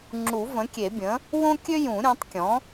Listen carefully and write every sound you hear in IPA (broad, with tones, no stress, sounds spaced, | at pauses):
ŋ͡ǁ u˨˩˦ v ə̃˩˥ kʲ e˨˩˦ bʲ ə̃ː˩˥ | w õ˥ kʲ ø˥ j ũ˨˩˦ ɾʲ õ˩˥ tˤ kʲ ɔ̃˩˥